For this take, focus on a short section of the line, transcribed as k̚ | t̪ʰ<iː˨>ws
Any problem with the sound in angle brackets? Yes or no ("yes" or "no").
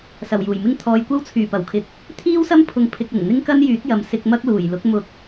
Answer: yes